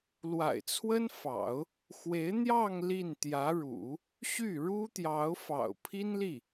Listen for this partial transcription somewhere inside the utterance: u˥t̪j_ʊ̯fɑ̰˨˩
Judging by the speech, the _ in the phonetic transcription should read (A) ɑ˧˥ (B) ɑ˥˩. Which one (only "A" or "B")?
A